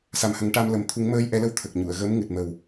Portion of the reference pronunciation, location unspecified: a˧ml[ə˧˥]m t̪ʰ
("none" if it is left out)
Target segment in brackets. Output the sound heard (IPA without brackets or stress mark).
ə˨˩